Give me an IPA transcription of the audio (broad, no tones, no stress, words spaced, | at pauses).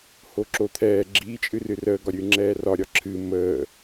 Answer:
hoǁot̪ʰɛː ɡ͡ǁi t͡ʃʼɨrɨrəː ɡɒɾʲɨːŋ͡ǁɛːrɒ ɾʲɒǁʰɨ məː